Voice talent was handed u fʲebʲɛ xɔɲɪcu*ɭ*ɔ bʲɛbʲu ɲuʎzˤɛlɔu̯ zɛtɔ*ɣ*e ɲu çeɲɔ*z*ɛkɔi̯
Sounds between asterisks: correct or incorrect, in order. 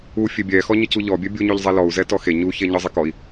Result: incorrect: ʎ, incorrect: x, incorrect: zˤ

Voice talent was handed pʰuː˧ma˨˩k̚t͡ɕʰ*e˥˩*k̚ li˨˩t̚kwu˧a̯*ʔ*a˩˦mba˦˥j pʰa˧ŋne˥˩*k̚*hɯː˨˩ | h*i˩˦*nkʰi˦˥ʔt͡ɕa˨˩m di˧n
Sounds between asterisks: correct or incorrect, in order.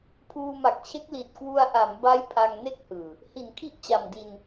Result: incorrect: e˦˥, correct, correct, correct

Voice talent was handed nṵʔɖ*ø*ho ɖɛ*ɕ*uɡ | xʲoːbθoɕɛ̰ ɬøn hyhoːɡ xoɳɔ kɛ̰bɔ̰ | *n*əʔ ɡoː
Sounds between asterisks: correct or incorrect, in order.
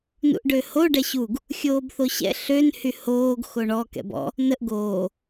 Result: correct, correct, correct

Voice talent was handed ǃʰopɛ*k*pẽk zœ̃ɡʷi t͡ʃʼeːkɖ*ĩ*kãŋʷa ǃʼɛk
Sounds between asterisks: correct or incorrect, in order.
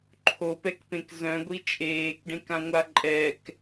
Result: correct, incorrect: ẽ

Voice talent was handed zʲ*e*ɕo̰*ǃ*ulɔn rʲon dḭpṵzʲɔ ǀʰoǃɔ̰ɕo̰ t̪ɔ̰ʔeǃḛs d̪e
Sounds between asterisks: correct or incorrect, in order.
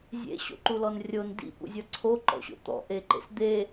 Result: incorrect: ḛ, correct

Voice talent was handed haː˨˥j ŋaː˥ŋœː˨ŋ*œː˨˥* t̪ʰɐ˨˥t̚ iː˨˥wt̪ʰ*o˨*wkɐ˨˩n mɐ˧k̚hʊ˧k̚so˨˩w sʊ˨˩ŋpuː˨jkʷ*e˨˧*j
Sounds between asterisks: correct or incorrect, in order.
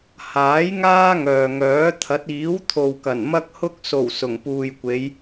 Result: correct, correct, correct

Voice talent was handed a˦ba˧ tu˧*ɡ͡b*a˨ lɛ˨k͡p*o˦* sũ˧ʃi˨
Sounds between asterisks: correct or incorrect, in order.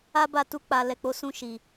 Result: incorrect: k͡p, incorrect: o˨˦

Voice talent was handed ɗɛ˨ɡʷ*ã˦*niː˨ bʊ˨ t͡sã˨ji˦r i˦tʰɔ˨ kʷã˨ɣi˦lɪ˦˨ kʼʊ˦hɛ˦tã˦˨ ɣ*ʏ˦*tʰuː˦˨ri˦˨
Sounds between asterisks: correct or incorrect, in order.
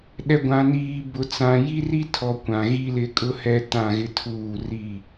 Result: incorrect: ã˨, incorrect: ɪ˦

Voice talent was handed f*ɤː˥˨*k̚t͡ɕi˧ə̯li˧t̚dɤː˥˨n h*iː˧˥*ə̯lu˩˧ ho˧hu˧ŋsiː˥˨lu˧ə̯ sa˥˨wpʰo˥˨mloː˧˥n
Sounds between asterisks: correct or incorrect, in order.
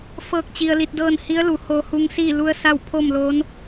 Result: correct, incorrect: i˧˥

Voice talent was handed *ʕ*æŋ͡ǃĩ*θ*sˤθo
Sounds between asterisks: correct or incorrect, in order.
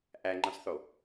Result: incorrect: ʔ, incorrect: none

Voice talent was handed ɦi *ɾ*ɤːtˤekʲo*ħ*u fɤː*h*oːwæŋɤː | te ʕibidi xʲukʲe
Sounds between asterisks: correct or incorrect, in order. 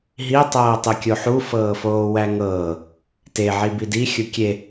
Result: incorrect: tˤ, correct, incorrect: f

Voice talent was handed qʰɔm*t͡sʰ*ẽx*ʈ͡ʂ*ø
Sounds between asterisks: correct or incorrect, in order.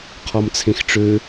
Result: correct, correct

